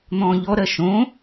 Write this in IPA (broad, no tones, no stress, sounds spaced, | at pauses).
n̪ ɔ̃ː ʎ ɔ ɾ ɜ ʃ õ